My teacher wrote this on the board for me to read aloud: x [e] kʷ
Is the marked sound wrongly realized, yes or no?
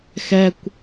yes